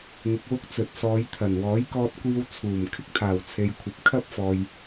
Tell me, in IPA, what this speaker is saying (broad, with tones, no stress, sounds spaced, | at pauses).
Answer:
ŋ ɪ˧ k̚ w ʊ˥ k̚ t͡s ɵ˨ t̚ s ɔː˨˧ j t̪ʰ ɐ˨˩ n w ɔː˨˥ j k ɔː˧ t̚ kʷ iː˧ w t͡sʰ uː˨˩ m kʰ ɪ˥ k̚ t̪ʰ aː˨˩ w t͡sʰ e˨ j kʷʰ ɐ˨ p̚ kʰ ɐ˥ p̚ f ɔː˨ j